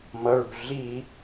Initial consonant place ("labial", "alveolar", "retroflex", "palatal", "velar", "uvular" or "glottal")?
labial